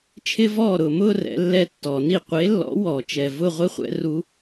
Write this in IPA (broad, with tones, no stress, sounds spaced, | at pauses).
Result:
t͡ʃʰ ɪ˦˥ v ɔː˥˩ ɾ ʊː˨ m ʊː˥˧ r ɛ̰˨˥ lː ɛ˦˥ tː ɔ˨˩˦ n i˥˩ qʷ e˨˥ lː ɔ̰˨˥ w ɔ˨˩˦ t͡ʃ ɛ˨ v ʊ˥˧ ʁʷ ɪ˦˥ χʷ ɛ̰˨˥ r u˦˥